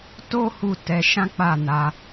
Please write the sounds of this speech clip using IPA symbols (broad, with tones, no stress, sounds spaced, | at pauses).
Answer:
t o˦ h u˧ t ɛ˧ ʃ ã˦ k͡p a˦˨ n a˧